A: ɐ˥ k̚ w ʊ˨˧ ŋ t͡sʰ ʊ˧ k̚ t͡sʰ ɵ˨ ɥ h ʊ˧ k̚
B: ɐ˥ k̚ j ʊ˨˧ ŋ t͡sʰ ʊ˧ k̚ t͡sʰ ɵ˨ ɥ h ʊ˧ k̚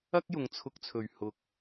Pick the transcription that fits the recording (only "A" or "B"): B